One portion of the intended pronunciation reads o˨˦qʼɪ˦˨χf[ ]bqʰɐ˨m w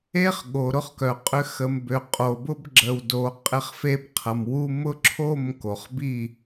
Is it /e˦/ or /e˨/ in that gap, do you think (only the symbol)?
e˦